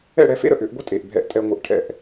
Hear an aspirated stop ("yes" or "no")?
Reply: yes